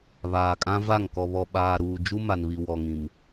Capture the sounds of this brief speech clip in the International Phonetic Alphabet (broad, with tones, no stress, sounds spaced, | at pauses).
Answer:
β aː˨ kʼ ã˦ v a˦˨ ŋ k ɔ˨ β ɔ˨ ɓ aː˨ ɾ uː˨ d͡ʒ u˦ m a˨ n β i˨ w ɔ˨ ŋ ĩ˨ m